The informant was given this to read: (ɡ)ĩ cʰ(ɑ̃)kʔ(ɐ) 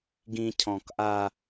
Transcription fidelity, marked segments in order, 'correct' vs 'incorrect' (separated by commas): correct, incorrect, incorrect